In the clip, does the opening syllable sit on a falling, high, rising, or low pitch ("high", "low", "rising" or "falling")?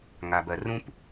low